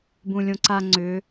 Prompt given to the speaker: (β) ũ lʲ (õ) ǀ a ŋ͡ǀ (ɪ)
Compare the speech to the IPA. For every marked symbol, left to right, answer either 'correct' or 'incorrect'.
incorrect: b, correct, incorrect: ʏ

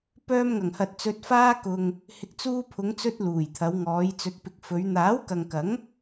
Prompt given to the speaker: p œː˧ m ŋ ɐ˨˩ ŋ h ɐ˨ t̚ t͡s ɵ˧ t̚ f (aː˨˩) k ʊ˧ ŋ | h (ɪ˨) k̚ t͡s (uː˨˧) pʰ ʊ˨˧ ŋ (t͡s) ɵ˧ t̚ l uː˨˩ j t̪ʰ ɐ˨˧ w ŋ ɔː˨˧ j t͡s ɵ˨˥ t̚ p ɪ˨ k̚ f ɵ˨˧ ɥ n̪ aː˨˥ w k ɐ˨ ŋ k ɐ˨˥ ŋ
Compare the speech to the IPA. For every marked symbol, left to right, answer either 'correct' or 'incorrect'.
incorrect: aː˥, correct, incorrect: uː˧, correct

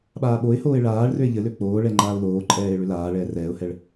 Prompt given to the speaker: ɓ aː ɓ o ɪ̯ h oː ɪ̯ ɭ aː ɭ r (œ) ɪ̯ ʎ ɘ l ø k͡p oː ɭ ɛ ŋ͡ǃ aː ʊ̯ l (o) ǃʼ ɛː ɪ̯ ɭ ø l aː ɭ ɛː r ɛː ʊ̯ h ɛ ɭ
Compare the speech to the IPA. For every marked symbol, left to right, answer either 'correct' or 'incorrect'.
incorrect: ø, incorrect: oː

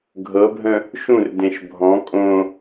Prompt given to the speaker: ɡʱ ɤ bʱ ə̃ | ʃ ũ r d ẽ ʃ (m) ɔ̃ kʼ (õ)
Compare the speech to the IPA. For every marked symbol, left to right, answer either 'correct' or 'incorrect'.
incorrect: bʱ, correct

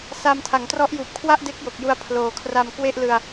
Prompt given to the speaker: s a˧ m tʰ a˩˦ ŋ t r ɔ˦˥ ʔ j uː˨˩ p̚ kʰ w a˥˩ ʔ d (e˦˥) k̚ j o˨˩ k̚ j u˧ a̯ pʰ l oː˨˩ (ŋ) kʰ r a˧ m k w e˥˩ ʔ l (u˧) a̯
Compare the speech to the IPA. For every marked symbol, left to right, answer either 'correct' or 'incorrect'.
correct, incorrect: none, incorrect: ɯ˧

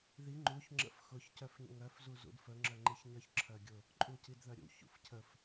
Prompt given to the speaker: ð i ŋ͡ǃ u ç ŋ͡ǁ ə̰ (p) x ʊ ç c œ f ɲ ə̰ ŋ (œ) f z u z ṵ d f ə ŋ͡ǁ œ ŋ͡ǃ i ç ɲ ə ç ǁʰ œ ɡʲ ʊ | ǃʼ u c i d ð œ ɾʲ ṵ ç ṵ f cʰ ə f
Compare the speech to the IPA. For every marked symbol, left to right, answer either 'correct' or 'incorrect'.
incorrect: f, correct

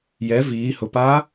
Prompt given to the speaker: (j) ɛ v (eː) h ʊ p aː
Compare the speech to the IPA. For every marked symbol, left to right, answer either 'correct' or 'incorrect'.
correct, incorrect: iː

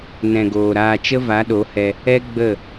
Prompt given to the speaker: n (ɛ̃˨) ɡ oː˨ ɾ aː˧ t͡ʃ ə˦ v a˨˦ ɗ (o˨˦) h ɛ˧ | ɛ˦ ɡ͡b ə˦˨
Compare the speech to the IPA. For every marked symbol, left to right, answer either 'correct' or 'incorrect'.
correct, correct

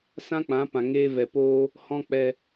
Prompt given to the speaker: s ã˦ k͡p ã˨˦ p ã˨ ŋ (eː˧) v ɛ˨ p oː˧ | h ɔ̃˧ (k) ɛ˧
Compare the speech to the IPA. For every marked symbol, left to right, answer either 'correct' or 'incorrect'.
correct, incorrect: k͡p

